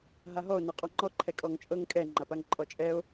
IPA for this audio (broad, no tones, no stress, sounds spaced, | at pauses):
ɦ a ɦ ɔ o̯ n ɛ qʼ ɔ ŋ͡ǃ ɔ ǃʰ ɛ kʼ ɔ ŋ t͡ʃʼ ɤ ŋ kʼ ɛ ŋ͡ǃ a p a ŋ ǃʼ ɔ t͡ʃʼ ɛ o̯